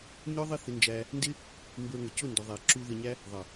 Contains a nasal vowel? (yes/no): no